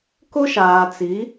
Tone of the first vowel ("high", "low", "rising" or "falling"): high